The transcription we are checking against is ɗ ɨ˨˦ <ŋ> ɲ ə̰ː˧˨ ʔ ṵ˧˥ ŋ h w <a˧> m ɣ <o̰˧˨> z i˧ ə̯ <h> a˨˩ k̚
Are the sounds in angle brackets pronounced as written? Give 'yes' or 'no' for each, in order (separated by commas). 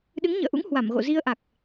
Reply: yes, no, yes, no